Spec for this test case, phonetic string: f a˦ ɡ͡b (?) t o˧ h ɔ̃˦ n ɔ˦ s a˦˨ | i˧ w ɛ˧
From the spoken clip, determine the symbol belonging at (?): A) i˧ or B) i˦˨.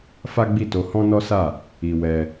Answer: B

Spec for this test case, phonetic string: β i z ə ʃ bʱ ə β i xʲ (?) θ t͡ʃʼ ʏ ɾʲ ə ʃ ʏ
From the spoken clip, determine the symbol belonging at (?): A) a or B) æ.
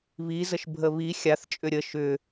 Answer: A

